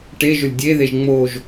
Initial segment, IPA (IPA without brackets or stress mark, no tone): ʈ